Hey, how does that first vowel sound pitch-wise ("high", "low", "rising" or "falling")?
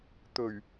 low